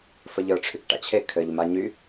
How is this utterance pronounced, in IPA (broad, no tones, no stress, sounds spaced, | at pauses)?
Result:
f ə ʎ ə˞ ʈ͡ʂʰ y k ʈ a̰ t͡ɕʰ e kʰ ɘ ʎ m a ɲ y